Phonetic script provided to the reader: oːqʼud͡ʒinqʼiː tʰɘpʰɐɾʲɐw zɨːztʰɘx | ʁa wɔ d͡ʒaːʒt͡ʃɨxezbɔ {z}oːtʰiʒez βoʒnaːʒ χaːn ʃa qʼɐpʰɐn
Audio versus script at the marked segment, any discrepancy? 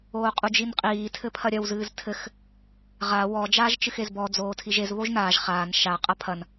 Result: yes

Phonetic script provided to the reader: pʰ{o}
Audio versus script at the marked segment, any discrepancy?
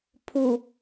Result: yes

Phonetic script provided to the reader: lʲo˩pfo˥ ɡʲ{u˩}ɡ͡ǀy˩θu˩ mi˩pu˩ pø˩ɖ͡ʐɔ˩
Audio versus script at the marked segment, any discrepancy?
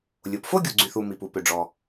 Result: no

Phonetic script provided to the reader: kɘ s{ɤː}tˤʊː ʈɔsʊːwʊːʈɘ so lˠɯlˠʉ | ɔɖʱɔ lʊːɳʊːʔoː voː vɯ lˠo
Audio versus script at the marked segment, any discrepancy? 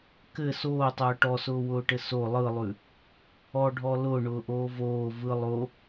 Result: yes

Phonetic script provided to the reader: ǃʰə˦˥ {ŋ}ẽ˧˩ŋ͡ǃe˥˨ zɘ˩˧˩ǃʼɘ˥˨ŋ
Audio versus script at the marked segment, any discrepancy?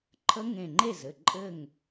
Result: no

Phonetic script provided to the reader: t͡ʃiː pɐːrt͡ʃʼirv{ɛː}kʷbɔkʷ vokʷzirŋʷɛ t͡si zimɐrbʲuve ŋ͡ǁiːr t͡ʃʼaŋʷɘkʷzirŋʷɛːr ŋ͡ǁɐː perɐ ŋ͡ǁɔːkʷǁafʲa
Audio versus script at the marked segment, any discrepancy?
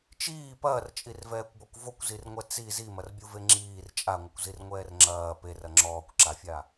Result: no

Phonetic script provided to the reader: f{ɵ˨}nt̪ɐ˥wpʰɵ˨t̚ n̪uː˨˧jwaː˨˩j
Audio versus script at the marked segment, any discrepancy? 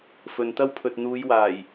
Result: no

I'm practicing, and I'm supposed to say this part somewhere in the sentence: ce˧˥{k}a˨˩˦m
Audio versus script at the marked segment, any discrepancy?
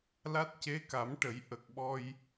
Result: no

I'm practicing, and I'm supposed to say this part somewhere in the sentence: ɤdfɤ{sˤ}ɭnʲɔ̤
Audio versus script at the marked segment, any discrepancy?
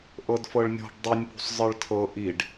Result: yes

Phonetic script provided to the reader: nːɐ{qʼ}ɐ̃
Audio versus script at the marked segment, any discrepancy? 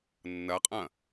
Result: no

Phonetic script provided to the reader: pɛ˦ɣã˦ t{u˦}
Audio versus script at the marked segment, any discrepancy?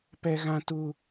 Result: no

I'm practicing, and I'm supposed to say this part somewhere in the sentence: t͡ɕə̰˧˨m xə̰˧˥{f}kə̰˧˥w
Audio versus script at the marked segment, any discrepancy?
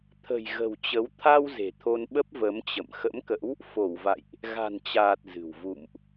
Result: yes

